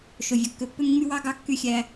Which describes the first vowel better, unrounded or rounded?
rounded